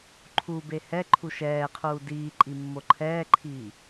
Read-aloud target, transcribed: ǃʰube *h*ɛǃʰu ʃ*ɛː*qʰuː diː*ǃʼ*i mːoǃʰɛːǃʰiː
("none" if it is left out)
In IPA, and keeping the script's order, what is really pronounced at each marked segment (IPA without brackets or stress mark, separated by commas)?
h, ɛː, ǃʼ